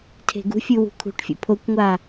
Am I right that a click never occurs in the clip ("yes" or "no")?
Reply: yes